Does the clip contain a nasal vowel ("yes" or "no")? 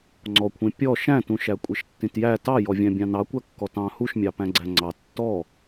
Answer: yes